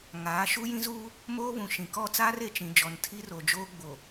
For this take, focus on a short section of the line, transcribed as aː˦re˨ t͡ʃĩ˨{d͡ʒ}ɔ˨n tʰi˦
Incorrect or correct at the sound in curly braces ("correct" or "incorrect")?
correct